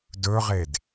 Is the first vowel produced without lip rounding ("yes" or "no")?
no